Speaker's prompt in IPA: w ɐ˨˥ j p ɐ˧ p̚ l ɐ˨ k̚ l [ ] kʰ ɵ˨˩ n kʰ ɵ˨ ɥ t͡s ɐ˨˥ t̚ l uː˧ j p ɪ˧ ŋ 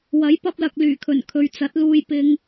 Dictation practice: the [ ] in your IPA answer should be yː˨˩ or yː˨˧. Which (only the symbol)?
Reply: yː˨˩